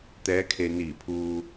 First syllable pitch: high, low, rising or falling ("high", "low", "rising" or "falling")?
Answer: rising